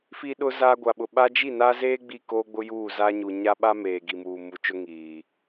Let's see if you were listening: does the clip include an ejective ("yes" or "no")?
no